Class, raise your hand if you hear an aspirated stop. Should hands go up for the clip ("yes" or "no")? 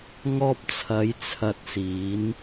yes